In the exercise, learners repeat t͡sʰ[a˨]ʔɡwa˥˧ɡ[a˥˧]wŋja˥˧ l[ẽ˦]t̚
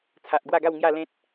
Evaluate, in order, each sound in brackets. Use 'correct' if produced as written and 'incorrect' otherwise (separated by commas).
correct, correct, correct